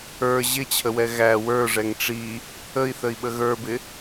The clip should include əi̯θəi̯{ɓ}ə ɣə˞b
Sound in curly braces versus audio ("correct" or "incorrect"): correct